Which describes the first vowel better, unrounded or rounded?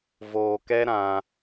rounded